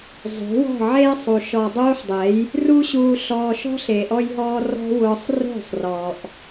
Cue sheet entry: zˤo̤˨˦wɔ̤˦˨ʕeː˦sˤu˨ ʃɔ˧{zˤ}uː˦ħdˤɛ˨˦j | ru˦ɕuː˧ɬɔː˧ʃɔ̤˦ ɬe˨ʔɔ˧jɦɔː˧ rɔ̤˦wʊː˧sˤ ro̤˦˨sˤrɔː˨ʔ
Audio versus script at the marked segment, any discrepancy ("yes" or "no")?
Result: yes